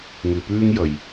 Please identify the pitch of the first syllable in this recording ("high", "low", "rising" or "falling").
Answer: low